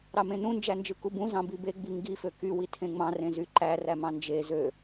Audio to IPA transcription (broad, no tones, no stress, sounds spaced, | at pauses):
ɾ ɑ m ẽ n ũ n d͡ʒ æ n d͡ʒ ɯ k u b ũ z ɑ̃ b i b e ɡ͡b i ŋ ɡ i f ø k y w i tʰ ẽ ŋ͡m ɑ̃ r ẽ z y ǃ æ r æ m ɑ̃ n d͡ʒ e z ø